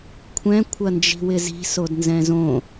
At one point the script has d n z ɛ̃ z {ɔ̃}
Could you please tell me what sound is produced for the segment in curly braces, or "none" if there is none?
õ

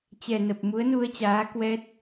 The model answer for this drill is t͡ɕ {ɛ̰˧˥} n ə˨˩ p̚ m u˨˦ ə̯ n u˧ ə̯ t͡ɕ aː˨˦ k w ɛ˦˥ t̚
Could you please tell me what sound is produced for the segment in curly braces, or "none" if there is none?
ɛ˨˩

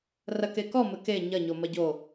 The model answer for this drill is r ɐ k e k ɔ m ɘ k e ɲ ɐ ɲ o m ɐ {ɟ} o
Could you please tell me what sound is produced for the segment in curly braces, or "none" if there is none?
ɟ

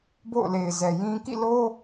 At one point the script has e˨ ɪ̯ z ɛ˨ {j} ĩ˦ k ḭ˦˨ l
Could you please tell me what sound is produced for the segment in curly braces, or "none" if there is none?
j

